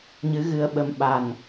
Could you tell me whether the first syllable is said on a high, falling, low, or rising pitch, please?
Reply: rising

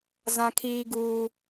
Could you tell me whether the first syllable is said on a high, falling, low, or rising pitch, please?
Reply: high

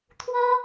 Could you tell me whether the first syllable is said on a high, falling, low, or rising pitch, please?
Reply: high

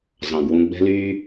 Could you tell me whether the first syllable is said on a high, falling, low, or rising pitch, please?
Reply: low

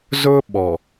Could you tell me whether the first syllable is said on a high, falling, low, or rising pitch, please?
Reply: high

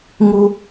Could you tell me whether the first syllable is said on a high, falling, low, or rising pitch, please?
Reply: high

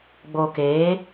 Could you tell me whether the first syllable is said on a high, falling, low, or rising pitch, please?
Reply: low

